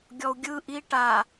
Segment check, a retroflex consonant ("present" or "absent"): present